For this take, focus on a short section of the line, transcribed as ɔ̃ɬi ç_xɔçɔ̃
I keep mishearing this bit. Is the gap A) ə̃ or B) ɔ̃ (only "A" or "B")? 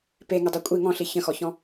A